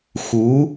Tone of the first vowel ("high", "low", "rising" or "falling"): rising